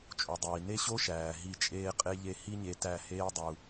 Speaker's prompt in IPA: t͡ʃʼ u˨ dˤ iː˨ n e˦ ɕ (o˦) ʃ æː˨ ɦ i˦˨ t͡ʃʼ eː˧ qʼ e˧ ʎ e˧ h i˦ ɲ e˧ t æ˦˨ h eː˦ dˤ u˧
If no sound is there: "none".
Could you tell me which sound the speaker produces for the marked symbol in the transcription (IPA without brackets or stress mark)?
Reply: o˦